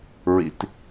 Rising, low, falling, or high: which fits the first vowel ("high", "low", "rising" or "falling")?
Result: low